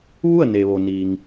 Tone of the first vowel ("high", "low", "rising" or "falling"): falling